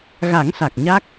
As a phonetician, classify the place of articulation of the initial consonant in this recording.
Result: velar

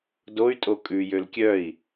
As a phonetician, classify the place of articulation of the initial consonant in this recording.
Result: alveolar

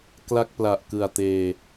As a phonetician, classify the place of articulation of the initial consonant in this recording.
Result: velar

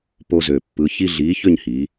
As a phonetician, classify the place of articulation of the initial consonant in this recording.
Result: labial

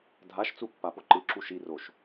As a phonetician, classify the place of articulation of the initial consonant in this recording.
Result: alveolar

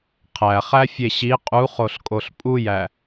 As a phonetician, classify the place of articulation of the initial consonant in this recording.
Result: uvular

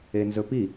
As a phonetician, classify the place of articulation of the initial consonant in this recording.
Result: alveolar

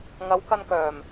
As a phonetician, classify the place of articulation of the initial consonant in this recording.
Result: velar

